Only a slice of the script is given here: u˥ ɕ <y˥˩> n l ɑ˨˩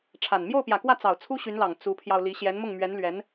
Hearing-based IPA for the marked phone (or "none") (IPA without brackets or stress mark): y˧˥